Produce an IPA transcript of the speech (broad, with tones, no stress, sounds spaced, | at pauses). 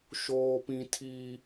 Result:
ʃ oː˦ p ĩ˦ tʰ iː˦